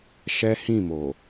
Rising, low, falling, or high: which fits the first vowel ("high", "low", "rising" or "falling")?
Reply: high